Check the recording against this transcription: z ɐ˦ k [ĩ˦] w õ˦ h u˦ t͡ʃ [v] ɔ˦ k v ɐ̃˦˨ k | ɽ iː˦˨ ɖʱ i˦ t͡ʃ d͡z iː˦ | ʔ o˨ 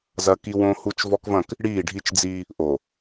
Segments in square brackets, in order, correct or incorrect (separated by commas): incorrect, correct